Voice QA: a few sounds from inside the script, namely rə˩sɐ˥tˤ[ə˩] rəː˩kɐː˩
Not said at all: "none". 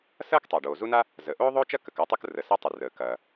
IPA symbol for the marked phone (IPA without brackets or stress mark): ə˩